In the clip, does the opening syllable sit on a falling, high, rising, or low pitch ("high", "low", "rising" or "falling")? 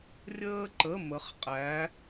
high